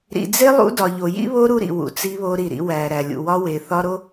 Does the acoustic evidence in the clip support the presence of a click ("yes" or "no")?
no